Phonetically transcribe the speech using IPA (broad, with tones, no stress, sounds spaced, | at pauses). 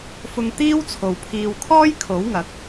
f ʊ˧ ŋ t̪ iː˥ w t͡sʰ o˨ w pʰ iː˨ w kʰ ɔː˥ j kʰ o˨˥ w ŋ ɐ˨˥ k̚